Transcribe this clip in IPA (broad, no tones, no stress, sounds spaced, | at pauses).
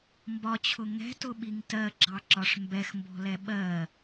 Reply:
m b ɒ t͡ɕʰ ʊ ŋ ɛ̤ t ʊ ɓ i ŋ t ɜ ɡ͡ǁ ɑ ǁ ɒ ʂ m b ɛ x m b ɔ̤ l ɛ ɓ ɜ